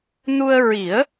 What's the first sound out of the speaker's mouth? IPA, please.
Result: n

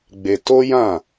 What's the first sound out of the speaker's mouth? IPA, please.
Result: ɡ͡b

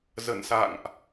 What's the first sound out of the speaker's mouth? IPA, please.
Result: z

